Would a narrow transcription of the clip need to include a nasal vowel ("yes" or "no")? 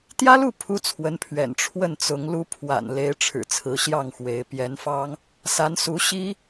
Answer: no